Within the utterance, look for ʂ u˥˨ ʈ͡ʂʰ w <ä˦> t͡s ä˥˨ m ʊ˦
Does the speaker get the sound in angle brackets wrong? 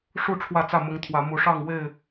yes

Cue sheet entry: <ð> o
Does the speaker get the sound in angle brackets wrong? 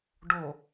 yes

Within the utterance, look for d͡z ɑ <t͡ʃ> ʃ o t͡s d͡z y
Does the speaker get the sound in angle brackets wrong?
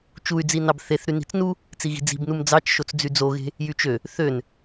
no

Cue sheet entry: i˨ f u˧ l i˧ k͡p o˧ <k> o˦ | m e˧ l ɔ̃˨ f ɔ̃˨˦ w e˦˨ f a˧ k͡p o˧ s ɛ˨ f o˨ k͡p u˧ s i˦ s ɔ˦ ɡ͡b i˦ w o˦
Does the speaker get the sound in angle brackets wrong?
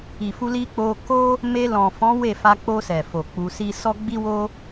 no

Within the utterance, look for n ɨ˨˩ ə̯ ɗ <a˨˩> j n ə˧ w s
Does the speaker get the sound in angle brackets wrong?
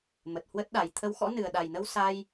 no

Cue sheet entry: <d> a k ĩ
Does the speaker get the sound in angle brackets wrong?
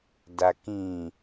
no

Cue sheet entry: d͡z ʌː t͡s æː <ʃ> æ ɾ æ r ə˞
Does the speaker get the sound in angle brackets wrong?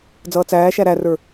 no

